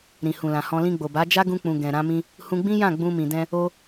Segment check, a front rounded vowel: absent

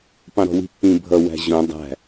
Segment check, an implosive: absent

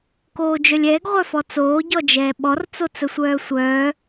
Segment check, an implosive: present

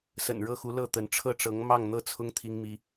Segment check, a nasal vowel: absent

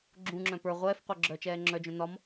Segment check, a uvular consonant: present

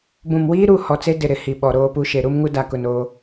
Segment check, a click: absent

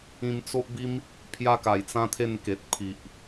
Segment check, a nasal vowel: present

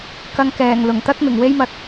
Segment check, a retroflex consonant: absent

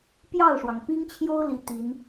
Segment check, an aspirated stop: present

